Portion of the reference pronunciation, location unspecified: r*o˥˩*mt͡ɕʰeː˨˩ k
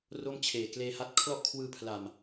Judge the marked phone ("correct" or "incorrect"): correct